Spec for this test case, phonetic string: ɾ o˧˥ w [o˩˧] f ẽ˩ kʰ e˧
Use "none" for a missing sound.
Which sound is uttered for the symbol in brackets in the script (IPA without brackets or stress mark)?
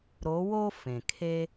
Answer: o˥